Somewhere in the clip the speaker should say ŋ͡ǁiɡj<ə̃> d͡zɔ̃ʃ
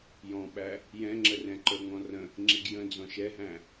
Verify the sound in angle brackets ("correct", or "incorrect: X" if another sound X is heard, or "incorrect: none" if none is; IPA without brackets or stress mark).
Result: correct